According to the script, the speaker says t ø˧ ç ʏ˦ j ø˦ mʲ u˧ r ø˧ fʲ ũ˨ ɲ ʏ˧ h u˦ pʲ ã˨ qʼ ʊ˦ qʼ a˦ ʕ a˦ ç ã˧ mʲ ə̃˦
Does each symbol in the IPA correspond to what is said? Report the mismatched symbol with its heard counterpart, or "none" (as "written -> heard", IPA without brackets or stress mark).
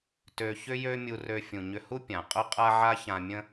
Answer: none